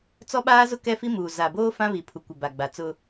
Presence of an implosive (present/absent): present